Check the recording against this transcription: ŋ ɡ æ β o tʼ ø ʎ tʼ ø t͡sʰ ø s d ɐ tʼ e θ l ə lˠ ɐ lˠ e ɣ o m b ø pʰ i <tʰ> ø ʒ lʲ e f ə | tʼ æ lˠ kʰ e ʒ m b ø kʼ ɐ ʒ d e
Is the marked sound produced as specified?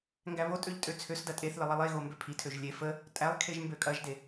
yes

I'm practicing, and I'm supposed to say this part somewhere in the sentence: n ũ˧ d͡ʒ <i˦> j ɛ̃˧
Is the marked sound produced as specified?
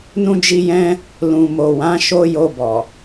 no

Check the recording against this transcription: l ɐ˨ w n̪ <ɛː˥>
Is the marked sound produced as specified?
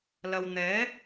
no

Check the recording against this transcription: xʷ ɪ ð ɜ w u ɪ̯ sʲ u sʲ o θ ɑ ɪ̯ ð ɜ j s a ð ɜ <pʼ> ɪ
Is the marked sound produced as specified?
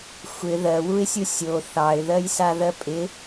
yes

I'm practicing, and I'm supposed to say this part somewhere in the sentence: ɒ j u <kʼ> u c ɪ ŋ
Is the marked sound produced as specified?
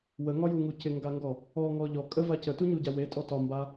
no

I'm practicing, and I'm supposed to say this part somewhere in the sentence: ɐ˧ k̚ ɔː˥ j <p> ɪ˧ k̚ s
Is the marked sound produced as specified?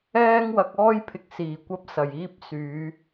no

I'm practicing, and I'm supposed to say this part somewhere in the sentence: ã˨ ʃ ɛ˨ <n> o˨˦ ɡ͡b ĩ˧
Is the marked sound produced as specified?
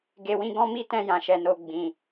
yes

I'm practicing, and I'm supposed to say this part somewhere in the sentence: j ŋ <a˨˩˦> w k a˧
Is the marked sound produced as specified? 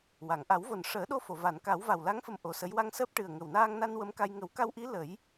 no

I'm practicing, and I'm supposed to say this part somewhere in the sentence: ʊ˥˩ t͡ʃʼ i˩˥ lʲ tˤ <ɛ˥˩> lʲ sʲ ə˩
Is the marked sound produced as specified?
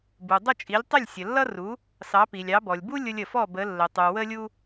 no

